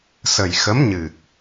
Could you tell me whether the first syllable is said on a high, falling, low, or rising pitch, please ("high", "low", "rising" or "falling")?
low